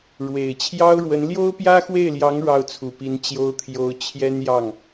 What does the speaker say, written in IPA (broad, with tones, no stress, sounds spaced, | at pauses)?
ɻ w e˨˩ ɪ̯ t͡ɕʰ j ɑ˥ ʊ̯ ɻ w ə˧˥ n l j o˥ ʊ̯ p j ä˥ x w e˥˩ ɪ̯ l j ɑ˧˥ ŋ ɻ ɑ˥˩ ʊ̯ t͡sʰ u˨˩ p i˧˥ n t͡ɕ j o˥ ʊ̯ t̪ʰ j o˧˥ ʊ̯ t͡ɕʰ j ɛ˥ n j ɑ˥˩ ŋ